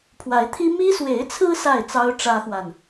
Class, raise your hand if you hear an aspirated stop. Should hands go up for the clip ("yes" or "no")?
yes